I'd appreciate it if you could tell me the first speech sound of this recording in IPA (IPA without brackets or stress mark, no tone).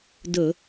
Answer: d